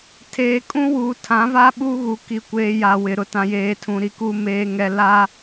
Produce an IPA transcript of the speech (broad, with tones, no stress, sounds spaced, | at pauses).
tʰ eː˨ kʼ ũ˦ w uː˨ tʰ ã˨˦ v a˦ ɓ uː˦ ɣ u˨ k i˨ kʷ eː˨ j a˨ w ɪ˨ ɾ ʊ˨ t ã˨ j eː˨ tʰ ũ˨ ɾ i˨ k uː˦ m eː˦ ŋ ɛ˦ l a˦